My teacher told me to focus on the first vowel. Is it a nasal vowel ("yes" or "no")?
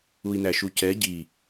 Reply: no